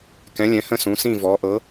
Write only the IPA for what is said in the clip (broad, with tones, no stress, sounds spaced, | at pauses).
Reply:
k ɛ̃˨˦ lʲ ɛ̃˨˦ h ə̃˦˨ s ũ˨˦ s ĩ˦˨ v ɔ˨˦ ʔ ɤ˨˦